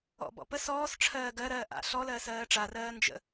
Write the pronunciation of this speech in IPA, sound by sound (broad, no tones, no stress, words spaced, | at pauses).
ɔ̰bɔ̰ pəs ɔːs ʈ͡ʂʰɜːɡɜɾɜː ʔa̰ ɬɔlɜːs ɜːʈ͡ʂarɜː nd͡ʒə̰